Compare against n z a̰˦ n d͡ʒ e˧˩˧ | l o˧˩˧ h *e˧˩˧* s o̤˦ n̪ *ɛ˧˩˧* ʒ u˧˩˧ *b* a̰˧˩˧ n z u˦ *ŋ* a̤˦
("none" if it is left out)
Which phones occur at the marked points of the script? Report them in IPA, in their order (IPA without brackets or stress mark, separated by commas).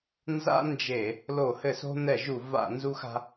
ɘ˧˩˧, ɛ˧˩˧, v, x